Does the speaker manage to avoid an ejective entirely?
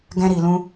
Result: yes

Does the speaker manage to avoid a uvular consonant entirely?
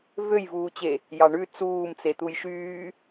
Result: yes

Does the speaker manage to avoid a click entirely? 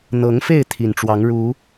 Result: yes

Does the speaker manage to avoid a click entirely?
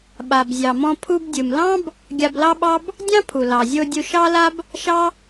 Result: yes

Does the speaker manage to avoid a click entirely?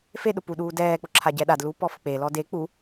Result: no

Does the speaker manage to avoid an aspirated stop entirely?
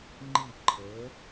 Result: no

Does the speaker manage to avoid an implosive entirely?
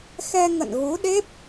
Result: no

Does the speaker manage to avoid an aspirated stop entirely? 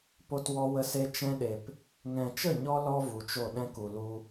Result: yes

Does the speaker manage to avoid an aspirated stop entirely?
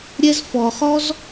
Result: yes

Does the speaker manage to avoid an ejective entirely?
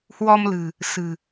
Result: yes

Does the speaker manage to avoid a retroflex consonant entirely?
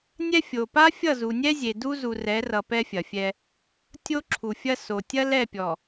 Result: yes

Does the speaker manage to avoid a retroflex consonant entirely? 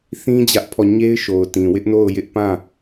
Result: yes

